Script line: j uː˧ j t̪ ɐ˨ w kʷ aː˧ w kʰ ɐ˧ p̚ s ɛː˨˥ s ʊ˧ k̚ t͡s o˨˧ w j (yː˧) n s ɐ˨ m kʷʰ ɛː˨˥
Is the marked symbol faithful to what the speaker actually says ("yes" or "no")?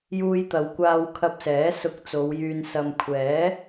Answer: yes